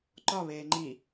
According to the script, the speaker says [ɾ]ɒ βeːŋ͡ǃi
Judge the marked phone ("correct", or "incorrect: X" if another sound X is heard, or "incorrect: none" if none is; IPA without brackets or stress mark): incorrect: ǃ